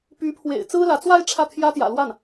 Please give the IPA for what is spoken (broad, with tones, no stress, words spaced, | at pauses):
py˧˥pʰwḛ˨˩ɪ̯ t͡sɹ̩˥lä˧˥t͡swa˥ɪ̯ ʈ͡ʂʰä˥˩t̪ʰjä˥t̪jä̰˨˩lwa˥˩n